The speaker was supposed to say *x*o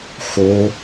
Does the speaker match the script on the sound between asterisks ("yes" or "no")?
yes